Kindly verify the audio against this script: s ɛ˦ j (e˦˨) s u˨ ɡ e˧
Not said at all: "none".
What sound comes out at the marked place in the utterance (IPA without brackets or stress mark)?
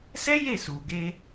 e˦˨